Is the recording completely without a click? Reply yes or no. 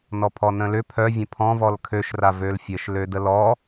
yes